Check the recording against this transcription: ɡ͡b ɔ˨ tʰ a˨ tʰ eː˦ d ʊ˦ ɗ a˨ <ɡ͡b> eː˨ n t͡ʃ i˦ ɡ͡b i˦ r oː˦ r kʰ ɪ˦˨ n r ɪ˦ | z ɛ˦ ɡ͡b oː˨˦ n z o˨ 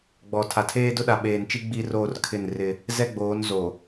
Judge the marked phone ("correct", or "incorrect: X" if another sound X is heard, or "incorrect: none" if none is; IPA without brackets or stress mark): incorrect: ɓ